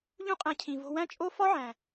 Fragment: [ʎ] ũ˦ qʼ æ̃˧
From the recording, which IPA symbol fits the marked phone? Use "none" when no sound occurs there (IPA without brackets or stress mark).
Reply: ʎ